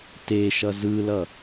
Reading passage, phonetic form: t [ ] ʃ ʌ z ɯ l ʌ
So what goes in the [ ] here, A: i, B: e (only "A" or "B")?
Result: B